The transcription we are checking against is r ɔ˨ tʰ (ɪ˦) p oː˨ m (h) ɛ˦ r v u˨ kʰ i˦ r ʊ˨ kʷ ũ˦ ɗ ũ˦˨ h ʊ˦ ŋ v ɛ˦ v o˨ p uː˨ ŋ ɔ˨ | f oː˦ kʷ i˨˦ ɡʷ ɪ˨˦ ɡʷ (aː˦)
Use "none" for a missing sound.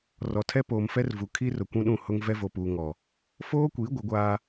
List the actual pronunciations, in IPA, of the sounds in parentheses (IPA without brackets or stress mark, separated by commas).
ɛ˦, f, aː˦